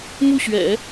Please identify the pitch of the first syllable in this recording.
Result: falling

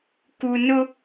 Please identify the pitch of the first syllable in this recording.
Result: low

